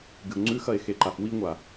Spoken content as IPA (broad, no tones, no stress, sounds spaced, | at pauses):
ɡ ɨ o̯ ŋ͡ǀ ʉ x ɐ e̯ x e ǃ a f w i ŋʷ a